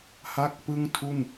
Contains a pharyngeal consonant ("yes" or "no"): no